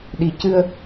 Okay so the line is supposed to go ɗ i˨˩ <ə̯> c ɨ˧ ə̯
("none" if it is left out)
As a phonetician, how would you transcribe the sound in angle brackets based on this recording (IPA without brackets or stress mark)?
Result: none